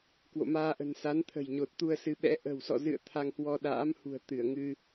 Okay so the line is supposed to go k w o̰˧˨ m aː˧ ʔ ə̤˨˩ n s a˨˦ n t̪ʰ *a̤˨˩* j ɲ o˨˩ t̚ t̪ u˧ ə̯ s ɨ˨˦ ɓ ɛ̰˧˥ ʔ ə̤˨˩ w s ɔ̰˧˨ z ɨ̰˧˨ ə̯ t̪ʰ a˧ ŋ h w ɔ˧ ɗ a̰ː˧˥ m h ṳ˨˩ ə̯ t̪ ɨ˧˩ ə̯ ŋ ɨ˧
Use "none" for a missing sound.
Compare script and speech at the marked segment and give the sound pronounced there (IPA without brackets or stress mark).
ə̤˨˩